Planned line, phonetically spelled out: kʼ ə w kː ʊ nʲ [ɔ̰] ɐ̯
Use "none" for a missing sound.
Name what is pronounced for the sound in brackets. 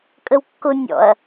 ɔ̰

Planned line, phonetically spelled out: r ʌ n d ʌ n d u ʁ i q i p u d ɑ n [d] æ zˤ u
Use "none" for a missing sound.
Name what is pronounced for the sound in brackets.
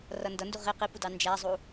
d͡ʒ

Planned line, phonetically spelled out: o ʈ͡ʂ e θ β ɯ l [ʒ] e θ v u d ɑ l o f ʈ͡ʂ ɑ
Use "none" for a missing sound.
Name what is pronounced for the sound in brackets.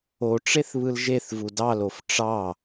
ʒ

